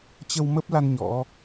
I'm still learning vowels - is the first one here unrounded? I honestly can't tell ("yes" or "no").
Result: yes